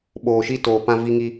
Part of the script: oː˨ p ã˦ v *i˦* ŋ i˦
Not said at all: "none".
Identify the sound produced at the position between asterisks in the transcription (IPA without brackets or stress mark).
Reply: i˦